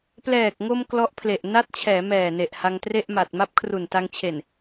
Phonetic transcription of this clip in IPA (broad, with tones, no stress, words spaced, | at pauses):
plɛː˨˩k̚ŋo˧m klɔ˦˥ʔpʰle˨˩ʔ na˦˥t̚t͡ɕʰɛː˩˦mɛː˨˩ne˨˩ʔ ha˧ŋtre˥˩ʔma˨˩t̚ ma˦˥p̚kʰru˨˩nta˧ŋt͡ɕʰe˨˩n